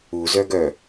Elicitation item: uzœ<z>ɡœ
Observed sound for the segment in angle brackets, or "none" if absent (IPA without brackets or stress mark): none